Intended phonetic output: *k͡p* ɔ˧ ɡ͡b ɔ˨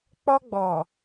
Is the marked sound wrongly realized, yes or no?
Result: no